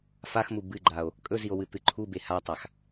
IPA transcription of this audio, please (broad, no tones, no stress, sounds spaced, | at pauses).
f a x m u b ɨ ɡ͡ǃ a o̯ | kʼ ɵ z i o̯ w ɨ t̪ ɨ ǃʰ u b e h a tˤ a x